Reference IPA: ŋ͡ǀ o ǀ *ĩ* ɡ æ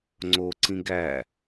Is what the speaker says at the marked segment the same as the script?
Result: yes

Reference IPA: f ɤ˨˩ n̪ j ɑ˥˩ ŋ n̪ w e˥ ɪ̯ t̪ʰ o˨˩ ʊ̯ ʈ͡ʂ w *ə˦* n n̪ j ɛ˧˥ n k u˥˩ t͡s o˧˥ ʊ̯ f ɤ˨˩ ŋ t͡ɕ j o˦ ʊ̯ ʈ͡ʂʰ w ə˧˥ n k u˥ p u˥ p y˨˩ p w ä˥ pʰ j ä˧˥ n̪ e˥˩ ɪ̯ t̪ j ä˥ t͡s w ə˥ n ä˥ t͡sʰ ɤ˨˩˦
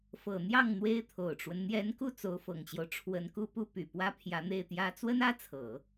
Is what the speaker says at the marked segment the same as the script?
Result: yes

